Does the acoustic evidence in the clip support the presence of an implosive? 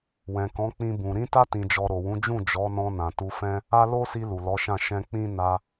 no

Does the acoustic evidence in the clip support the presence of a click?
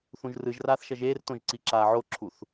yes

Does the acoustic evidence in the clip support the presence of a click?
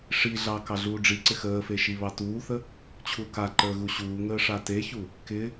yes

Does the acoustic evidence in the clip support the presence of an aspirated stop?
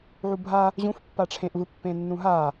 yes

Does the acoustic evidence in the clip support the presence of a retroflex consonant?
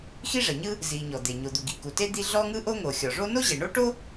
yes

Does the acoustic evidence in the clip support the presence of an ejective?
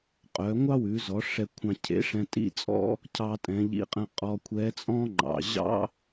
yes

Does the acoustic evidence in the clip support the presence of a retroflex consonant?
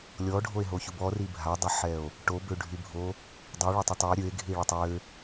yes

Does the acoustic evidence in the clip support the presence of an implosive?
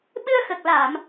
yes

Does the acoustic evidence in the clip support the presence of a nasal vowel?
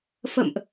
no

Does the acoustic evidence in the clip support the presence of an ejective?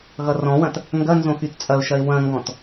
yes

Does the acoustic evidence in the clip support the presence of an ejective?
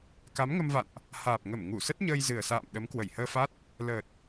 no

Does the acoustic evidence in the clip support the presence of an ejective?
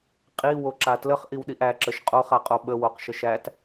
yes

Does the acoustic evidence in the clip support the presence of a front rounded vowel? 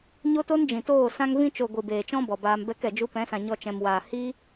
no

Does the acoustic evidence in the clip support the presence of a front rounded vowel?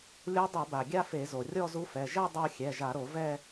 no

